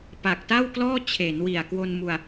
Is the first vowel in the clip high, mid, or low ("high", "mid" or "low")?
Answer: low